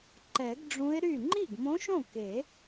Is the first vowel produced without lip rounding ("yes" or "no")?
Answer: yes